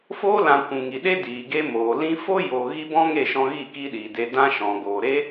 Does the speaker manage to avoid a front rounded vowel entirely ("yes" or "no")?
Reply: yes